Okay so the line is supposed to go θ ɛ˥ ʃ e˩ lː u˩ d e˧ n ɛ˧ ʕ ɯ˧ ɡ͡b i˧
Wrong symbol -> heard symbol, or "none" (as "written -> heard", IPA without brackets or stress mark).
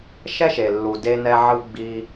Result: θ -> ʃ